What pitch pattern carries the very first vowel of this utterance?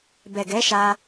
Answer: low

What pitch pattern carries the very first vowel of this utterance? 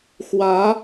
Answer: rising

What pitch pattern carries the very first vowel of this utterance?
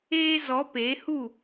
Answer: high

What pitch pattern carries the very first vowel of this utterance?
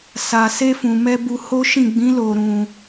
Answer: low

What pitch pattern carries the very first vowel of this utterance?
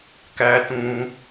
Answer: high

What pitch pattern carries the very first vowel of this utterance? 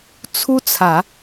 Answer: high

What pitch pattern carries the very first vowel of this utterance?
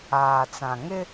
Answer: low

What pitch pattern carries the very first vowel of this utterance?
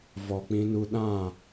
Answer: low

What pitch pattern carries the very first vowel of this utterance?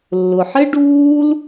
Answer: low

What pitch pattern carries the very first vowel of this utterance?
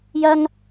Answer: high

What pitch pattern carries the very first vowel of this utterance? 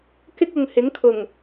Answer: high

